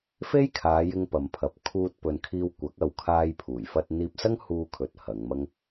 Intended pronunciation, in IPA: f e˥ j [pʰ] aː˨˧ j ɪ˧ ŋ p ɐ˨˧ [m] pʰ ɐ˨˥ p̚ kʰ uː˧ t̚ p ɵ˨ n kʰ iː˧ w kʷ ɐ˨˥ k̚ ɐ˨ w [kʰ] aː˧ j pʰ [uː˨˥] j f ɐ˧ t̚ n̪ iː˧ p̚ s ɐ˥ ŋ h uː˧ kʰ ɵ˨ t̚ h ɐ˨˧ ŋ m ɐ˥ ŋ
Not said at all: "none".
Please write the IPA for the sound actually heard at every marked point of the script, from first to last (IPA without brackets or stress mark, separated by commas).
kʰ, m, kʰ, uː˨˩